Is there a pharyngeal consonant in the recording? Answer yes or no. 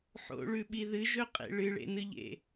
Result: yes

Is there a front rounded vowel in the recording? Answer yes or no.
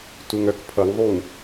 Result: yes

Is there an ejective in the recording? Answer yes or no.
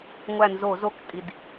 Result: yes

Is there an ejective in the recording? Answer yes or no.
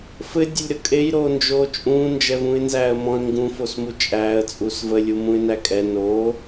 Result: yes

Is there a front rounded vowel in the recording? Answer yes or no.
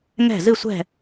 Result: no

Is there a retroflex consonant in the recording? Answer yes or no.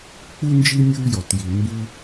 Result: no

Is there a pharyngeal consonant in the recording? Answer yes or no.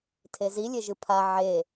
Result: yes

